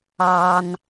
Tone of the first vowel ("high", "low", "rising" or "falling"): low